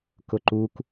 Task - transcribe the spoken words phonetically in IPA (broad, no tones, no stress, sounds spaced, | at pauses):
k ʊ ǃ u k